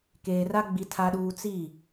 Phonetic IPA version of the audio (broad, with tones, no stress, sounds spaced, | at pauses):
k eː˨ r a˦ ɡ͡b i˦ tʰ a˦ ɗ uː˦ t͡s i˦˨